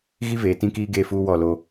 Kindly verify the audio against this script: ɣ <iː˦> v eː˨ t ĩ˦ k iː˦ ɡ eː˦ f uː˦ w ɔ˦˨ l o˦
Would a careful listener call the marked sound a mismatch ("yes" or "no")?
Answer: yes